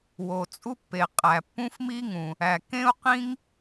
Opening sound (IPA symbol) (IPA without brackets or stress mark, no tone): w